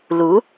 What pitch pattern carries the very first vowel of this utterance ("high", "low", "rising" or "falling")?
rising